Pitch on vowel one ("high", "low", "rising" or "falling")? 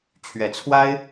rising